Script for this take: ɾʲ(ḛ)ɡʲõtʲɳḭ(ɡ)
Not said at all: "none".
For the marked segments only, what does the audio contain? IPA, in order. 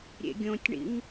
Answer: ḛ, ŋ

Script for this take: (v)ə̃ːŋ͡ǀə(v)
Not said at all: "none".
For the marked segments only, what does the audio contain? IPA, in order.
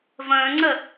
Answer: v, none

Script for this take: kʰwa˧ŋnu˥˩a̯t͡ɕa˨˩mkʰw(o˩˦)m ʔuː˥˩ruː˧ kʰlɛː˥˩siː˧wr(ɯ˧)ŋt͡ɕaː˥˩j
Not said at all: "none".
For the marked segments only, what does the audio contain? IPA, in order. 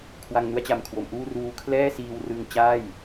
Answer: o˩˦, ɯ˧

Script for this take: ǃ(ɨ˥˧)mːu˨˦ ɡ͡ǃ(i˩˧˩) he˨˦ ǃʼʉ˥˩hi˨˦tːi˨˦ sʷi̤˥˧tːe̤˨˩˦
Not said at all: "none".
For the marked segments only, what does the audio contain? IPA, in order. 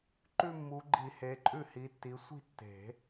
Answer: ʉ˥˧, i˨˩˦

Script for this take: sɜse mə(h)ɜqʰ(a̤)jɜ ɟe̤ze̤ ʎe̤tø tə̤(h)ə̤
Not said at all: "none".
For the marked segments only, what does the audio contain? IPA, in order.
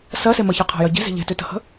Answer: ç, a̤, h

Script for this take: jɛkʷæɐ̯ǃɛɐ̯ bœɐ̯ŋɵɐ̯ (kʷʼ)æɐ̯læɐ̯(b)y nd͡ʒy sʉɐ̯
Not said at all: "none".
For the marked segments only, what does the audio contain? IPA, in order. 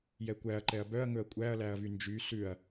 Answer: kʷʼ, v

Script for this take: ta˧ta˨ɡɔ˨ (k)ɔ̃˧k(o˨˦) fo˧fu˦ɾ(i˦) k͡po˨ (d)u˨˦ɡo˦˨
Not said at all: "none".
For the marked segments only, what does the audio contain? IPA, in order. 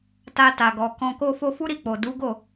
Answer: k, o˦, i˦˨, d

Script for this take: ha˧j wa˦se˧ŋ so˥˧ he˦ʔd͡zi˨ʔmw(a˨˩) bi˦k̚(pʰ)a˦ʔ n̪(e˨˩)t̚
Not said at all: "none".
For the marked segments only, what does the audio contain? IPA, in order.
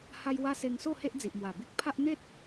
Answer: a˨˩, pʰ, e˦

